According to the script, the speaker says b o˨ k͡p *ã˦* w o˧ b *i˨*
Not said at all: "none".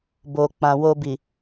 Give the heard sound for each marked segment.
ã˨, i˨

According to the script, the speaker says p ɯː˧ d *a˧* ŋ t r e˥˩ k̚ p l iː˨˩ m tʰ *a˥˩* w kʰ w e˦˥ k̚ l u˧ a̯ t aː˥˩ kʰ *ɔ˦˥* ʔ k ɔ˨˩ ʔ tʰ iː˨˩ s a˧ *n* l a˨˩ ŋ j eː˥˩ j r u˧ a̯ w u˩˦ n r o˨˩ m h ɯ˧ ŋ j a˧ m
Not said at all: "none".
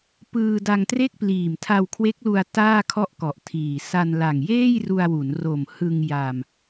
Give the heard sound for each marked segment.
a˧, a˧, ɔ˥˩, n

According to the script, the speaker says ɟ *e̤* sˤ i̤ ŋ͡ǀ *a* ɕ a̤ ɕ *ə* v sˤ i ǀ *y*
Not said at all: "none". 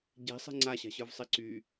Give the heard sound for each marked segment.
e̤, a, ə˞, y

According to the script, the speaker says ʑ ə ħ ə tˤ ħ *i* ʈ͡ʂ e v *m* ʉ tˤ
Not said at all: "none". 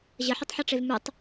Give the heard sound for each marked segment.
e, m

